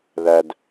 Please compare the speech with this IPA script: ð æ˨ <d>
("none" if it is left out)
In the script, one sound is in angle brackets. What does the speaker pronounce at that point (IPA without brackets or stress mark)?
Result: d